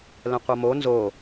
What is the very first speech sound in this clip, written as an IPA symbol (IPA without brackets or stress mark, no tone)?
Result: l